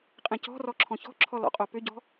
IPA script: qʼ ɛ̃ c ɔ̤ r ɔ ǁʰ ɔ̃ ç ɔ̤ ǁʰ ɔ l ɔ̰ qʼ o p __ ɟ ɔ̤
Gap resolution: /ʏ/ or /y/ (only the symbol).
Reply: ʏ